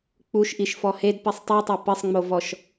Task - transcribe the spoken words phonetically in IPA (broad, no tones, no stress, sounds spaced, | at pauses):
k͡p u ʃ ʔ i ʃ f ɔ h e d p i sˤ tˤ i tˤ ɜ p ɘ sˤ ŋ͡m o v ɔ ʃ